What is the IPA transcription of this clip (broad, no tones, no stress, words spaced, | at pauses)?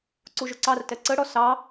ǀuʒʊǀɑrtɛ ǀəɽɔ sɑ